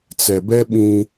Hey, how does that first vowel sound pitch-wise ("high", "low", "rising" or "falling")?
low